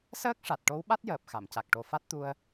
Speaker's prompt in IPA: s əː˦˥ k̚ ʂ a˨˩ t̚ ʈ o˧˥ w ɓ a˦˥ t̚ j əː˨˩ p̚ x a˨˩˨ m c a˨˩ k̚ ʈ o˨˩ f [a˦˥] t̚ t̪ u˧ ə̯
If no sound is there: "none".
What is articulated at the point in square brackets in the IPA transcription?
a˦˥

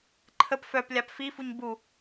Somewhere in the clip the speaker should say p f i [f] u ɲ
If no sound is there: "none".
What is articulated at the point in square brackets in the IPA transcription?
f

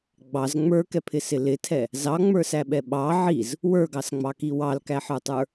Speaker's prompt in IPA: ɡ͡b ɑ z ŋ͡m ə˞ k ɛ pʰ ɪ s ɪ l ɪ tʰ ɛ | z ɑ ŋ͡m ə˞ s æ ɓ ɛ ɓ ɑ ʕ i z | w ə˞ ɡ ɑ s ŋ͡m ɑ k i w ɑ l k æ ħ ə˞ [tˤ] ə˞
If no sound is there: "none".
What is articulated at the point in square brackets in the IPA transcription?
tˤ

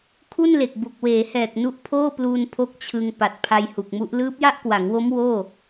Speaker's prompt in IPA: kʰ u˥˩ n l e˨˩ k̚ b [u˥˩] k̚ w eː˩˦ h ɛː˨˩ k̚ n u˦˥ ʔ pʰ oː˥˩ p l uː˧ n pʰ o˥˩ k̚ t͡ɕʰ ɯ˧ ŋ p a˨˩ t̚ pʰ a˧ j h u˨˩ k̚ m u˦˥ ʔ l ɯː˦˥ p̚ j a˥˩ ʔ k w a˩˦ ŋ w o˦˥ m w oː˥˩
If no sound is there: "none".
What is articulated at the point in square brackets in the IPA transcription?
u˨˩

